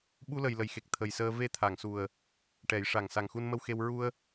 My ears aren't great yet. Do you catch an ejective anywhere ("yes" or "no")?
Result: no